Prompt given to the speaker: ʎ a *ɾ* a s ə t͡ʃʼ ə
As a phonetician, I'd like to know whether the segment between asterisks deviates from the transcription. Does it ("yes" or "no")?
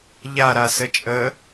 no